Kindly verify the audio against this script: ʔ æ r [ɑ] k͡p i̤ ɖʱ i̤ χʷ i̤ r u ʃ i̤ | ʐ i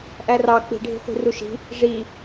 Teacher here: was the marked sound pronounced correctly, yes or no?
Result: yes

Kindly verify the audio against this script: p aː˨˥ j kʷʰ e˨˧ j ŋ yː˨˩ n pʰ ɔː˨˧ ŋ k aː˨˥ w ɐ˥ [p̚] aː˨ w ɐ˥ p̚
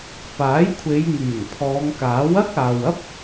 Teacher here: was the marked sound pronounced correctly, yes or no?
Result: no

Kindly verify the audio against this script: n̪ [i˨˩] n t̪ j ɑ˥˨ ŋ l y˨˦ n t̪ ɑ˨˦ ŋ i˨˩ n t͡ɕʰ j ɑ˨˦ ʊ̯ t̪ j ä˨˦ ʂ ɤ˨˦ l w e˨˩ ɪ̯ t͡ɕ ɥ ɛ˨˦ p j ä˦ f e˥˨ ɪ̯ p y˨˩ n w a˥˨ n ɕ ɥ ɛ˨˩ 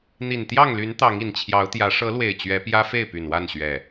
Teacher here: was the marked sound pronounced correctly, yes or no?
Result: yes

